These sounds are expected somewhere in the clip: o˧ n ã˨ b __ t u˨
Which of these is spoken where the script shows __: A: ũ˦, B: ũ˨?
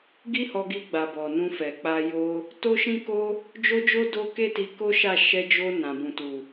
B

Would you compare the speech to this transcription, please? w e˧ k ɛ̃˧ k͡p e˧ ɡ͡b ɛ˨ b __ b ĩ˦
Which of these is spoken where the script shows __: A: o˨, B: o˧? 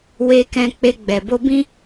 B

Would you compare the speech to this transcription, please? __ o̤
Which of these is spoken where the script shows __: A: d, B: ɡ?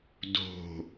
A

